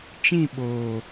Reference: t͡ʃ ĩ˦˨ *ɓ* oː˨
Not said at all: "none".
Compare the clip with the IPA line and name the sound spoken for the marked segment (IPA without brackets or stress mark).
ɓ